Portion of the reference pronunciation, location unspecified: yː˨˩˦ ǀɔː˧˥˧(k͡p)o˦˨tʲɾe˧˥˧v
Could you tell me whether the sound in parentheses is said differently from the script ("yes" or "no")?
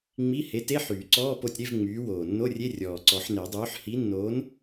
yes